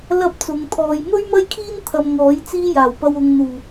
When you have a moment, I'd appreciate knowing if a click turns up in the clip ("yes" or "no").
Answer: no